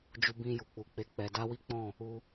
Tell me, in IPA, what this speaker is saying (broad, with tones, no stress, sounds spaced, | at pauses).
d͡ʒ u˧ b ĩ˧ j u˨ k͡p u˨ k͡p e˨˦ k͡p ɛ˧ d a˦ w i˦ k͡p ɔ̃˦˨ | u˧